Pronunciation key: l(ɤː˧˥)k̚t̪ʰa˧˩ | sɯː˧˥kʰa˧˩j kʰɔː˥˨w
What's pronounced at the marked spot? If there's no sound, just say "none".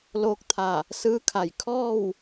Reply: oː˧˥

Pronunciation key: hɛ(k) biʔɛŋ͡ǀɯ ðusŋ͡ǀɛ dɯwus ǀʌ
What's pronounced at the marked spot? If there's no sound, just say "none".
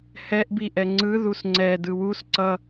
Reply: ʔ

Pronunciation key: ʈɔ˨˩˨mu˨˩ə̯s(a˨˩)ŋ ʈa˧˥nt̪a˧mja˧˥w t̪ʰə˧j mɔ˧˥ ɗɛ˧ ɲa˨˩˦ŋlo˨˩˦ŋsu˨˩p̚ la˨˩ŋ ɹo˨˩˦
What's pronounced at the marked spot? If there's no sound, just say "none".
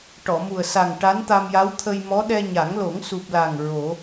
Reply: a˨˩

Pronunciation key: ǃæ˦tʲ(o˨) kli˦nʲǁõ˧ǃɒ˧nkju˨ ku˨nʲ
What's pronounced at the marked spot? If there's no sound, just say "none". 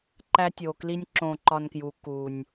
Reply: o˨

